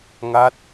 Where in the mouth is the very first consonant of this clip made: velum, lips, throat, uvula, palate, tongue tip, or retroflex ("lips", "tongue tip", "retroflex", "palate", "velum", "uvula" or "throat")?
velum